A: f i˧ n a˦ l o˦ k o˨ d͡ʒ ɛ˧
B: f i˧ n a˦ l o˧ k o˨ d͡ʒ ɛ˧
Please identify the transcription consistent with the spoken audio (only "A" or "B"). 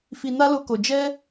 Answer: B